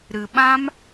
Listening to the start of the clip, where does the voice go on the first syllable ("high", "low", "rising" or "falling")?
low